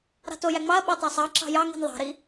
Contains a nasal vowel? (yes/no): no